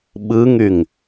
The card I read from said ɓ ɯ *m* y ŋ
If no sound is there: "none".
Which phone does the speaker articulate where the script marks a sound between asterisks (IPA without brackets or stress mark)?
ŋ